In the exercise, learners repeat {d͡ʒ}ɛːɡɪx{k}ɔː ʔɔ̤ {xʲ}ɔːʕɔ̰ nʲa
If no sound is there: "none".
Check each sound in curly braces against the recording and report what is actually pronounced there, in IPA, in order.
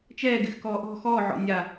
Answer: t͡ʃ, k, x

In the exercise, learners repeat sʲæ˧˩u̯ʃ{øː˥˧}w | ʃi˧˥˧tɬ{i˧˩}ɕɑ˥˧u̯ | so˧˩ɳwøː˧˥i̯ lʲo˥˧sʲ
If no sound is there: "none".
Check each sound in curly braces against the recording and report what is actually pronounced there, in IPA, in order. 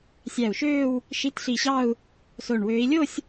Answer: øː˥˧, i˧˩

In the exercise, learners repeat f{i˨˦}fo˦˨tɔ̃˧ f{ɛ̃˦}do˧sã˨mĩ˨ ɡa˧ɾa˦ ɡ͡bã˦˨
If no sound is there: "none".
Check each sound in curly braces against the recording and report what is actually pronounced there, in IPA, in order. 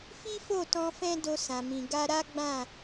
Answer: i˦, ɛ̃˦

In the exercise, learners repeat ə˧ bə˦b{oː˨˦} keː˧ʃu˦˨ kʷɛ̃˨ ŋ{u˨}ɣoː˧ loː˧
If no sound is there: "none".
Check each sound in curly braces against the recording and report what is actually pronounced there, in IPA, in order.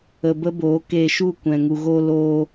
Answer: oː˨˦, u˨

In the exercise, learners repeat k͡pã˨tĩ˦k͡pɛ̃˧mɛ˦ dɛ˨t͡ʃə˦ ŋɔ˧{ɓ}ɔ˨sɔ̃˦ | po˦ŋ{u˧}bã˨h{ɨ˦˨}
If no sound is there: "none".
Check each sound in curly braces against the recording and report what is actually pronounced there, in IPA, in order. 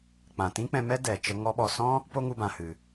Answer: ɓ, u˧, ɨ˨

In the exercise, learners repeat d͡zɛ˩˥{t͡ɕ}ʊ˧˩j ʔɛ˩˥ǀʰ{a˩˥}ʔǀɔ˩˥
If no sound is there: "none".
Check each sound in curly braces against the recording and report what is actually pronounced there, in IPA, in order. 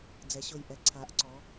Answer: ɕ, a˩˥

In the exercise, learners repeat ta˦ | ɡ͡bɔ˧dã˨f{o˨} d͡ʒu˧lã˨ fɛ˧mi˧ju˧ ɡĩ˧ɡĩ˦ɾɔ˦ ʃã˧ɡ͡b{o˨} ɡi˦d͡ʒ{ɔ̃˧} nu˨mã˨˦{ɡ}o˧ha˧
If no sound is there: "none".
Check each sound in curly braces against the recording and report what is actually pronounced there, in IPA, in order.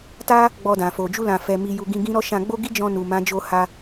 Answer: o˨, o˦, ɔ̃˧, d͡ʒ

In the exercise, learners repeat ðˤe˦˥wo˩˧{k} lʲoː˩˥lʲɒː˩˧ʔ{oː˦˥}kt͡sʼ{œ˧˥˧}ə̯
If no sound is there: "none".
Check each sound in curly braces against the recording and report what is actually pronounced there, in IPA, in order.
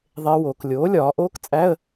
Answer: k, oː˦˥, æ˧˥˧

